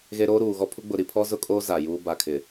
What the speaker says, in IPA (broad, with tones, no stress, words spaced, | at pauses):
ɣe˦ ɾoː˦ɾuː˨ɣɔ˦pʰu˦ ɡ͡bʊ˨ɾi˨pʰɔ˦ zʊ˦kʼoː˦ za˨juː˦ ba˨kʰɪ˨